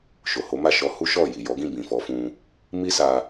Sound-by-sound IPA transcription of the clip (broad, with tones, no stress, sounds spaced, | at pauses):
ʃ o˨ h o˨˦ m a˦˨ ʃ ɔ˧ h u˦ ʃ ɔ˦˨ j i˨ j ɔ˨˦ ɡ ĩ˦˨ b ĩ˨ f ɔ˨˦ f ũ˧ | m i˦ s a˧